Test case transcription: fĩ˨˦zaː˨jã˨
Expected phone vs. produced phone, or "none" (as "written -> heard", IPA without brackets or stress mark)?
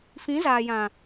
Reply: none